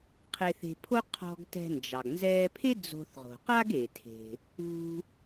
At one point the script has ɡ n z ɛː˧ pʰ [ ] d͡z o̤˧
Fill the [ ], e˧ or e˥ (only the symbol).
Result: e˥